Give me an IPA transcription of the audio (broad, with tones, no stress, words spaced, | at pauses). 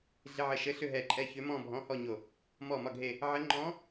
ɮɪ˧˥˧ʕɘ˧˩ʃɘ˧˥˧ ɬʏ˥˧ɦɛ˧˩ǃʼɛ˥˧ çʏ˧˥mɔ̃˥˧ bʱɔ̃˧˥˧hɔ˥˧ ɲo˧˩ | mɔ˧˩mɒ˧˩ɡʱe˧˩ | ʕɘ˧˥ ŋ͡ǃɔ̃˧˥